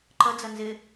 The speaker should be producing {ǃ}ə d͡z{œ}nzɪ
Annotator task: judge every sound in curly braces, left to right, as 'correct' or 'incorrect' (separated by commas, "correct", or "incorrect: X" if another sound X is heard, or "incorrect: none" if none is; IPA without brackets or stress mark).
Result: correct, incorrect: ə